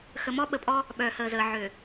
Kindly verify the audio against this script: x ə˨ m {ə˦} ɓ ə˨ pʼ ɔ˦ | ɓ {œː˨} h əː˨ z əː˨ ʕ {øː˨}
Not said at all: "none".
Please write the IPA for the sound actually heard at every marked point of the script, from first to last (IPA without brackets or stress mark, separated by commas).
ɔ˦, œː˨, ø˨